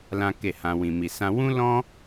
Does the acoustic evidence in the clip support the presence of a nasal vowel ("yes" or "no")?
yes